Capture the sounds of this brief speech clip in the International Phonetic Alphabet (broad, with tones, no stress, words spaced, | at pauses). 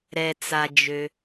ɾɛ˩t͡sa˩d͡ʒø˩